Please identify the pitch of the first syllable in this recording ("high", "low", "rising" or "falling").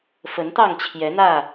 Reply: rising